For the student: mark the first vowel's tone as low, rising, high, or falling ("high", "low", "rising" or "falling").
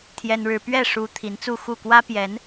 high